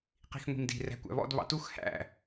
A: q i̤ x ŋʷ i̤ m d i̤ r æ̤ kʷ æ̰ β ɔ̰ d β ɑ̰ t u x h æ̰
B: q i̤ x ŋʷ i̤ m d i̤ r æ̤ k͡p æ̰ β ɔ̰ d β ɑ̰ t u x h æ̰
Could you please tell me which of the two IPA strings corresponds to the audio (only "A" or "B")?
A